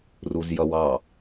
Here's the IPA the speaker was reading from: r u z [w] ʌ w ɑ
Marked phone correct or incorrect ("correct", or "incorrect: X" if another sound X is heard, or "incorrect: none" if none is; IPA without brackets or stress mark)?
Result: incorrect: j